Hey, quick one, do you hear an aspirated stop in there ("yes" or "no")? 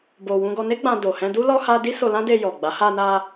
no